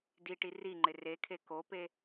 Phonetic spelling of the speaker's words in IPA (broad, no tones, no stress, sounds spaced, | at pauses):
d i ʈ i r i ŋ͡ǃ ɪ r e kʰ e k o p e